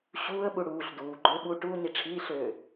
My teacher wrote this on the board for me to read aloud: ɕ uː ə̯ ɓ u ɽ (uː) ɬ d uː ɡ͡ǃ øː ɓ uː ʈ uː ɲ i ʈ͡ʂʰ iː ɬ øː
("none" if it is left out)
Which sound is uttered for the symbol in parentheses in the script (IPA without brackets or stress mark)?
uː